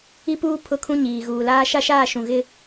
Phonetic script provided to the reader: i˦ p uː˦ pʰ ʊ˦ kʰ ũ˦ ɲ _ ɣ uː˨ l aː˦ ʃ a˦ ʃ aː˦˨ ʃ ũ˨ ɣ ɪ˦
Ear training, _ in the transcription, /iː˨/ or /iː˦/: iː˨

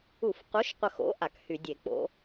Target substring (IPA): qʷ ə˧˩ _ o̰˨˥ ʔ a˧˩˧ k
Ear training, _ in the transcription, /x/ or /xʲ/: x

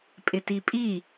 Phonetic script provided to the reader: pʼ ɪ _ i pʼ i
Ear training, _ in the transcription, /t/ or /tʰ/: t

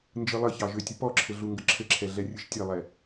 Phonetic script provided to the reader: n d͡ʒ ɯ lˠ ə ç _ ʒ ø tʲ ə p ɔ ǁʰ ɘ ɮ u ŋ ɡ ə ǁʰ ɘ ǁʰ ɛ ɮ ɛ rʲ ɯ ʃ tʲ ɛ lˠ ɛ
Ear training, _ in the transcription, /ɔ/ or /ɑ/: ɑ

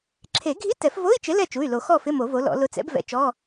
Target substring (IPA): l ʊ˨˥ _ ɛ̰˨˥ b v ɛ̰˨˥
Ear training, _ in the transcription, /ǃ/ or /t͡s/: t͡s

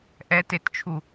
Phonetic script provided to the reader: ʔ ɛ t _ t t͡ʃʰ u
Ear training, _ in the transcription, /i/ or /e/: e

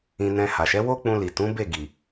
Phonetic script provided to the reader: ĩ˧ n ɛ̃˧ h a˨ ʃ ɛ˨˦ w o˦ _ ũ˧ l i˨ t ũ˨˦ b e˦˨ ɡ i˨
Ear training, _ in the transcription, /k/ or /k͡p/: k͡p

